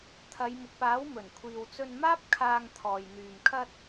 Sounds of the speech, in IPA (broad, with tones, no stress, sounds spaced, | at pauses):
t̪ʰ ɐ˨˧ j m ʊ˨ k̚ p aː˨˥ w m ɵ˨˩ n kʷʰ iː˨ w t͡s ɵ˧ n m aː˥ p̚ kʰ aː˧ ŋ t̪ʰ ɔː˨ j n̪ yː˨ m kʰ ɐ˧ t̚